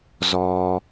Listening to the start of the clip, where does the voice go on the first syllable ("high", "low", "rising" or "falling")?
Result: low